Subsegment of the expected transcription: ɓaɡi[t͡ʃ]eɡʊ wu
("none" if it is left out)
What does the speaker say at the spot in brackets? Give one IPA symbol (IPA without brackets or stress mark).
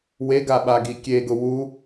kʲ